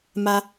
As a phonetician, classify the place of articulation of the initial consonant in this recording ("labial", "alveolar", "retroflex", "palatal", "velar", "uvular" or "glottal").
labial